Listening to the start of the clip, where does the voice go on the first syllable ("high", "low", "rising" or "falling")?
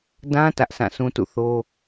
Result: high